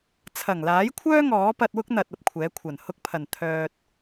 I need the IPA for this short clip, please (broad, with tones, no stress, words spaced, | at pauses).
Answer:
t͡sʰɐ˨˩ŋlaː˨˥jkʷʰœː˥ ŋɔː˨˥pɐ˧t̚wʊ˥k̚n̪ɐ˨t̚ ɐ˧p̚kʷʰɛː˨˥kʷʰɐ˨˩n hʊ˥k̚pʰɐ˨˩n t̪ʰœː˨t̚